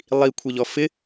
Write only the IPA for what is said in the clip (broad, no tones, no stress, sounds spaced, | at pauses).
lˠ i kʷʰ e ʎ ɔ f ɪ